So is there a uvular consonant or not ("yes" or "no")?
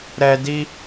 no